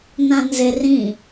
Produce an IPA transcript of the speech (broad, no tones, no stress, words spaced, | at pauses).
nãnzerĩ